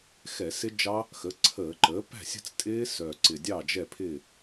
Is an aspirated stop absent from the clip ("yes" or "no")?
no